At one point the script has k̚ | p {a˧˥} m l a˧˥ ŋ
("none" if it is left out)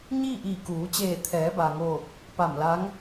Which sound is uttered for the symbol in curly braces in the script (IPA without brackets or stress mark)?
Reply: a˧˩